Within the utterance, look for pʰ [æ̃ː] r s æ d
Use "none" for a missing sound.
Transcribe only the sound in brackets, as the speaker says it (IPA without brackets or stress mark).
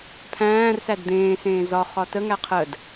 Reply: æ̃ː